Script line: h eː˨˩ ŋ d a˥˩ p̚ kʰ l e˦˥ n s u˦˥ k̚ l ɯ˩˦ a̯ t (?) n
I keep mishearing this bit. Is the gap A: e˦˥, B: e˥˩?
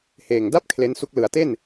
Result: B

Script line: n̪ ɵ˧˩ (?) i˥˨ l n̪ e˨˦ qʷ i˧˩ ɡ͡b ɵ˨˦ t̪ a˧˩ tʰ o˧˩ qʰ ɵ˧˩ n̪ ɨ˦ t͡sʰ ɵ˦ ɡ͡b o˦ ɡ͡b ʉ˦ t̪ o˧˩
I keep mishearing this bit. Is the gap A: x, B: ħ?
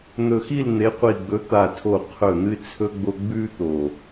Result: A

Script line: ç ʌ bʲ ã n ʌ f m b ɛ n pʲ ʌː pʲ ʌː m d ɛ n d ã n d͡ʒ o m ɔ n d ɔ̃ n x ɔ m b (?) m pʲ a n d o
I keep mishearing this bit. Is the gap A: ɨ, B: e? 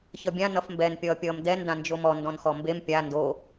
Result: B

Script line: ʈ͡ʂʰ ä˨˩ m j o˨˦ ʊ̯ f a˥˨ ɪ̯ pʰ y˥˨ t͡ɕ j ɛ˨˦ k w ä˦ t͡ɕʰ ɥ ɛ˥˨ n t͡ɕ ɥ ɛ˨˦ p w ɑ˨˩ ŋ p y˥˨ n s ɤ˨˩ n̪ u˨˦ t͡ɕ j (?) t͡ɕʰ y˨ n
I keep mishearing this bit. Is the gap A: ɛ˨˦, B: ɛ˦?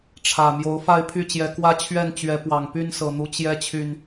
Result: B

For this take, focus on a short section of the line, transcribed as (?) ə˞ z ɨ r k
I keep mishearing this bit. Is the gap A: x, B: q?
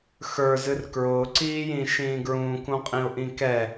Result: A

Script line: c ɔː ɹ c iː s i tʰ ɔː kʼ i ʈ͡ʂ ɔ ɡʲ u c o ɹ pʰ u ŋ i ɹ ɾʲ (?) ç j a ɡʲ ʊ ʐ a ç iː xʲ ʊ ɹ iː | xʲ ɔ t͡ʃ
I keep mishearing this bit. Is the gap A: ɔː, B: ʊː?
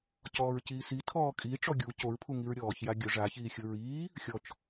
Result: A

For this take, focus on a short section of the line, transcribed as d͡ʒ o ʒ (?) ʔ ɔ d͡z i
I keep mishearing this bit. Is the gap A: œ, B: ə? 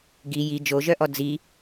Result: A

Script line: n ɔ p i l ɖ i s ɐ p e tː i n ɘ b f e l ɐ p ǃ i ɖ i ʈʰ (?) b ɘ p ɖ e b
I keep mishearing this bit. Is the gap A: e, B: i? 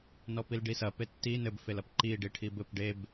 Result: B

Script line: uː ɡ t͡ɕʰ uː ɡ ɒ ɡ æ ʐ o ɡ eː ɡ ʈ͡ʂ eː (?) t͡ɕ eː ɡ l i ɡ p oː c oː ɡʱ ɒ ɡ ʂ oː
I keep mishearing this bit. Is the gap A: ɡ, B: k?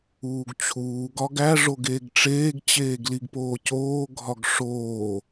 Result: A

